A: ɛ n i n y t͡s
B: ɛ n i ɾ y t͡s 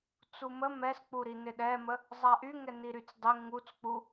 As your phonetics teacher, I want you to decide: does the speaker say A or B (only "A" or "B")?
B